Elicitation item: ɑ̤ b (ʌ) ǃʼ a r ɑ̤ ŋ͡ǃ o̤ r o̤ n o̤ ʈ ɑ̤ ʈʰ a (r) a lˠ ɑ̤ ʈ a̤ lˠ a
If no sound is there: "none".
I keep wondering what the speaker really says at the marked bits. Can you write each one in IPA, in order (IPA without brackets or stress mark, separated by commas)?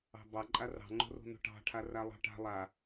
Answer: ɑ, r